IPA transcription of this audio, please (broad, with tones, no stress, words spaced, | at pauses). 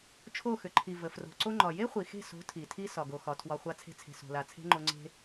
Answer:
t͡ʃʰo˦˨xʏ˨ǃʰi˨ və˨ fro̤˨ ǀo˧ŋ͡ǃɒ˨ je˦χʷi˨xe̤˦˨so̤˨˦ tʰi˨tʰi˧ sɒ˨ɡo˨xɒ˨ tʰwɒ˧ χʷa˧t͡sʰe̤˧t͡sʰe̤˨ so̤˨la˨t͡sʰe̤˦ŋ͡ǃo˧ ŋ͡ǀe̤˦